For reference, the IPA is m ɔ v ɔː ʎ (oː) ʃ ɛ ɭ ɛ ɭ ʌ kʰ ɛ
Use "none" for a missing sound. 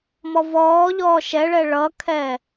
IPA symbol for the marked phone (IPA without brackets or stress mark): ɔː